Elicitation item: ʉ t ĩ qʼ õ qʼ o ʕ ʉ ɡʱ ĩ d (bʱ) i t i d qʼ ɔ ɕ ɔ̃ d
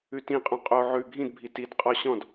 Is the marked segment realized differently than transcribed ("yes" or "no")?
no